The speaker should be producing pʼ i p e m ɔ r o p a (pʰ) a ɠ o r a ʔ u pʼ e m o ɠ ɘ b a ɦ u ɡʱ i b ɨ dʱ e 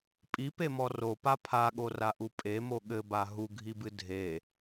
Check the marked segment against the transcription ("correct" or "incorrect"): correct